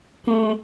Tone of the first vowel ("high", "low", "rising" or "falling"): high